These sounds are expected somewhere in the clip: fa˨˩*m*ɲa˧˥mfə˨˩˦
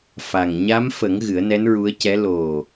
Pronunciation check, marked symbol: incorrect: ŋ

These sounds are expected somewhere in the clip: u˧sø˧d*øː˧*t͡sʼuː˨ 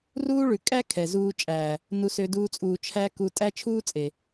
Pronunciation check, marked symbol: incorrect: uː˧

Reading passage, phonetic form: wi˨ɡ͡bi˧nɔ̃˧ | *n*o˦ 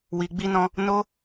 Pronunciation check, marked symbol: correct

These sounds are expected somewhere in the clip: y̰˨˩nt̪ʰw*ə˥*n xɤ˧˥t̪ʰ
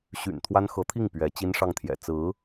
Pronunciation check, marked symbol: incorrect: a˥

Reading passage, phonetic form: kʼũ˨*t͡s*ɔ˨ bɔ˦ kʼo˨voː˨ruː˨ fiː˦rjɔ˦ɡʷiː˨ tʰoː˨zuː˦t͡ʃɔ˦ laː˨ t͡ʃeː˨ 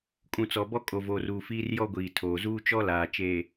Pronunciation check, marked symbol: correct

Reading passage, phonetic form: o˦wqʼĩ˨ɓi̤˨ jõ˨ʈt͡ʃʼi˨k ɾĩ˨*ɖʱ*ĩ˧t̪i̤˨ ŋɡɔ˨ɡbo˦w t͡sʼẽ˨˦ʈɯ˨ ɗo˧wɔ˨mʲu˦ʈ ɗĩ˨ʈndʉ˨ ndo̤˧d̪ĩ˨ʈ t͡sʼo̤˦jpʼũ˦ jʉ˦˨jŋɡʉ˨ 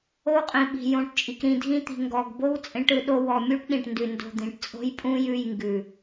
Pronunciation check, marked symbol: incorrect: dʱ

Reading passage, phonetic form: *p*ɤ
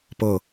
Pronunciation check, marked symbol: correct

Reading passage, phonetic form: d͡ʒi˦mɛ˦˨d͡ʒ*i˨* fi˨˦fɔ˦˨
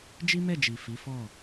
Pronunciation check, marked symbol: correct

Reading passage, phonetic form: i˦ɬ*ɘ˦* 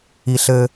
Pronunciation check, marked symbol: correct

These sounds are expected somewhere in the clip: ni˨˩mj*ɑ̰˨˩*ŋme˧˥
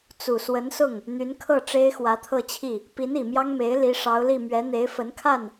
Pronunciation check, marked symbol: incorrect: ɑ˥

